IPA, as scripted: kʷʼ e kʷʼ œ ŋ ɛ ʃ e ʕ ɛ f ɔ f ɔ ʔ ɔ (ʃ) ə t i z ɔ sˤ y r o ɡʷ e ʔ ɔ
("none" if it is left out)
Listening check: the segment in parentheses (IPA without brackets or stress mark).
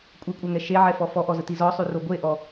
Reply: z